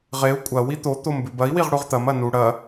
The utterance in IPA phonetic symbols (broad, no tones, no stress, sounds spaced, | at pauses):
ʁ e u̯ kʷʼ ɐ w i t̪ o t̪ o m b ʉ b ɐ i̯ w i ʁ ɽ u ʁ t̪ ɐ m ɐ n u ɽ ɐ